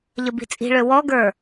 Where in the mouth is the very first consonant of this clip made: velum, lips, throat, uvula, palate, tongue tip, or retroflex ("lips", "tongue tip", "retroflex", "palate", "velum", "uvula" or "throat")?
palate